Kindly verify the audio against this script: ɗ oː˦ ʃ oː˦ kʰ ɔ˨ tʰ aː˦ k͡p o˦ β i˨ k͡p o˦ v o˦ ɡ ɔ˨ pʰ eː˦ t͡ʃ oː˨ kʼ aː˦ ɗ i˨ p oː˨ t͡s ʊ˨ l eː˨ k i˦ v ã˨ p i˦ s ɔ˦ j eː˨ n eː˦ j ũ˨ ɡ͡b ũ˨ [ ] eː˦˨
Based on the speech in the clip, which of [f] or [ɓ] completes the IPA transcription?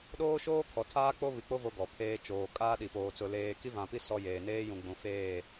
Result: f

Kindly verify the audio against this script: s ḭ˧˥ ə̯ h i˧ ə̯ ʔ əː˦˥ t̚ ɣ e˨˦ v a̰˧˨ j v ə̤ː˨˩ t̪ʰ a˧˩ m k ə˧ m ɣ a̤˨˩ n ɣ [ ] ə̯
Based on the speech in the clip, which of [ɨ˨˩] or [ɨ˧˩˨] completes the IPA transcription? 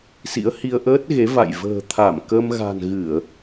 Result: ɨ˧˩˨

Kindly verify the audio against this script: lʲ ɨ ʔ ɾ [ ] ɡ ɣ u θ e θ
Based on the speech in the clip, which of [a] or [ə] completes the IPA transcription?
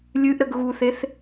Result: ə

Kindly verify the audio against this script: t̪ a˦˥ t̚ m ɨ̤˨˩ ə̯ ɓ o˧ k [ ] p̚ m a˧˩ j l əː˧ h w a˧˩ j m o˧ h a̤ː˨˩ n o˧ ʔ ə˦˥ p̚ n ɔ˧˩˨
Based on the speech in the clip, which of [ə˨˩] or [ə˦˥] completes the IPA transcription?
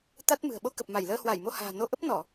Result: ə˨˩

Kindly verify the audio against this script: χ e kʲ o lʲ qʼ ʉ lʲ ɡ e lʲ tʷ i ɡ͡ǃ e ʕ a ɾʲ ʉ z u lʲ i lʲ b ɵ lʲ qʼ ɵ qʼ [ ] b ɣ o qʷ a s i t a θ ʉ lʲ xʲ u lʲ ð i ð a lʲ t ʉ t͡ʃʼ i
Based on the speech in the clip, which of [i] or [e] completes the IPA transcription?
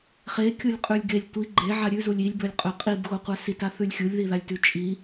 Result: i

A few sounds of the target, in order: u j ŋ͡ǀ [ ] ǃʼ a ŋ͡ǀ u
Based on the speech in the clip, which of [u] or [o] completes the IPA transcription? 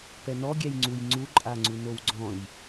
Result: u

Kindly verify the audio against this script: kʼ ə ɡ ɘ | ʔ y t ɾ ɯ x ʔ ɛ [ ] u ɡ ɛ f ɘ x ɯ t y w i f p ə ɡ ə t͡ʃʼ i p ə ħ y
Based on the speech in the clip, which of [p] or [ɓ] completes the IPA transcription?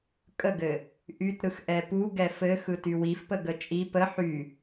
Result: p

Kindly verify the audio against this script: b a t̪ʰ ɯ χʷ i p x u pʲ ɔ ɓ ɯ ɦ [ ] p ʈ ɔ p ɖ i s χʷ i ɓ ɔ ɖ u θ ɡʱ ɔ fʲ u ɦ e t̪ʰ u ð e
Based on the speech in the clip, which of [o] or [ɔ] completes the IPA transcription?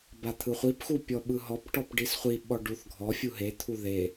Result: ɔ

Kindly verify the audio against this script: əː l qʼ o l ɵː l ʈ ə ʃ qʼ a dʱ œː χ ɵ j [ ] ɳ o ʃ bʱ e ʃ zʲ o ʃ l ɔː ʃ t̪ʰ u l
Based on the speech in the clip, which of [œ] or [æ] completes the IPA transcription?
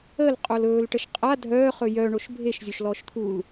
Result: œ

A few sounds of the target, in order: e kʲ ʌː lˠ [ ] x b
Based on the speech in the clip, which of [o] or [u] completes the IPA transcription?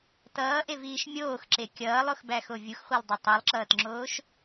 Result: o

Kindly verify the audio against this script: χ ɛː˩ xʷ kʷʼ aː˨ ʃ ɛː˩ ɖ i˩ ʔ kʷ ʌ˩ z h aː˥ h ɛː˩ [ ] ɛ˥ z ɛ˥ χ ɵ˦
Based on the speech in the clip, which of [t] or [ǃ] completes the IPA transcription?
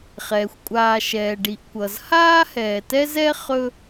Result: t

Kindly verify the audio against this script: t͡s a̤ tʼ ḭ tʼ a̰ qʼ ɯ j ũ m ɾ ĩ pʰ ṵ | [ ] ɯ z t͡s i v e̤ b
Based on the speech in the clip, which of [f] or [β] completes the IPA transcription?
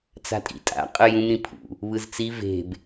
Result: β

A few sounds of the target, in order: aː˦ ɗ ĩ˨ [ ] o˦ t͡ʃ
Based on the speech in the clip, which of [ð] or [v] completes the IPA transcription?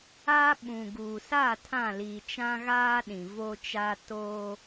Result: v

